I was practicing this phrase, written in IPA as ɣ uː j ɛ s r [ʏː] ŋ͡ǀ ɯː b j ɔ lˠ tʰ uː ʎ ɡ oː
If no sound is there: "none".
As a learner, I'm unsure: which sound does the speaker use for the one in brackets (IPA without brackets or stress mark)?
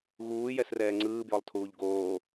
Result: ɛː